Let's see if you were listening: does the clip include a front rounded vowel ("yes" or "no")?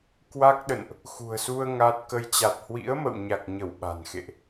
no